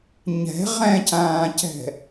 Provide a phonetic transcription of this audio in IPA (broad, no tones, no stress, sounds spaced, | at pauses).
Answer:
ɲ ɛ̤ ʁ ɛ̃ c ãː c ɛ̤